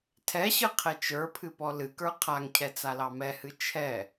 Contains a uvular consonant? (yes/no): yes